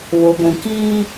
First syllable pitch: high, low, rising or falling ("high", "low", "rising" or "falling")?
low